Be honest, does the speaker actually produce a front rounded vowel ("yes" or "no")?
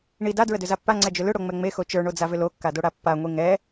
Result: yes